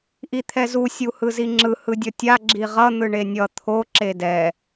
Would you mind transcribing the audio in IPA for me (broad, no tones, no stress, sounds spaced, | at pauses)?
ʔ i t̪ʰ ɛ z u sʲ u h ɯ z i ŋ͡ǁ ɯ h ɯ dʲ ʌ tʲ a ɡ͡ǁ i ʁ ʌ n̪ ɯ ɳ e nʲ ʌ t̪ʰ o ǁ e d ɛ